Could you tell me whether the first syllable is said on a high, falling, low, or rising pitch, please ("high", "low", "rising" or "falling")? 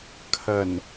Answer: low